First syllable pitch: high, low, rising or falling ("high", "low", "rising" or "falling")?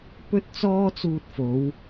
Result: high